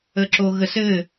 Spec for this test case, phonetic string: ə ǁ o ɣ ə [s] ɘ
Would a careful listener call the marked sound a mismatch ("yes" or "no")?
no